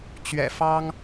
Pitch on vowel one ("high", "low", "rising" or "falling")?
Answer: low